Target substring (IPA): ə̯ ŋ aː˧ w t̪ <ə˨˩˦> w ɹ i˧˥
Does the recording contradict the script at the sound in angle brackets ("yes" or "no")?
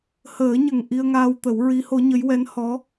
no